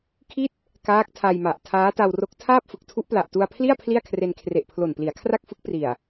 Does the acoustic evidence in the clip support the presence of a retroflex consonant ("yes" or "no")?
no